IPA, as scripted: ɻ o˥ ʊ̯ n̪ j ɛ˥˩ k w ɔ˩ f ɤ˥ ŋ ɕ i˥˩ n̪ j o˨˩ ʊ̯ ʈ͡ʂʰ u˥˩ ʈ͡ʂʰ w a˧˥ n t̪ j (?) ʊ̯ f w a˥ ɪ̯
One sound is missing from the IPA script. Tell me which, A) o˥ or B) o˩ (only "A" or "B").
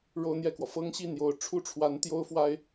A